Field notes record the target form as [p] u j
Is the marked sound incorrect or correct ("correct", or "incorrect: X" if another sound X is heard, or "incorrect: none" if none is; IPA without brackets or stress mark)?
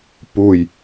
correct